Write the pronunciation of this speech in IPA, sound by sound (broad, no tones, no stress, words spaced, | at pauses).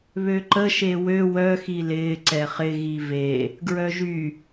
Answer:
βøǃə ʃewø wœ xilɪː ǀɛχɪ ɣive | ɡɹœʒy